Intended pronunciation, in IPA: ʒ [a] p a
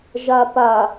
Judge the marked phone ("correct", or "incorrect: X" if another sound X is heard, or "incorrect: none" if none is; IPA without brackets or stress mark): correct